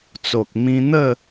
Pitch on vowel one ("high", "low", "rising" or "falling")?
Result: low